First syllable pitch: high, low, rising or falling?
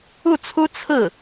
falling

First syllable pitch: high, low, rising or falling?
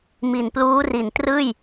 low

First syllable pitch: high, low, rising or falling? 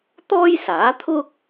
high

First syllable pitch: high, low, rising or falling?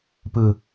low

